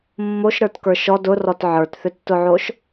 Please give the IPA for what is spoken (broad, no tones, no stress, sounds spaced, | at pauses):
mː o ʃ ɾ ə˞ t k ə˞ ʃ ɔ d ʊ r ɔ t ʕ ə˞ t θ ʏ tː ʊ ʕ o ʃ